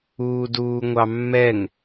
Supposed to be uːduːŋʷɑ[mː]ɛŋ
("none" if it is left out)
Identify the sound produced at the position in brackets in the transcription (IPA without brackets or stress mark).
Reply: mː